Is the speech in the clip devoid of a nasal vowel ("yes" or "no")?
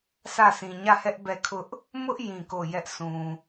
no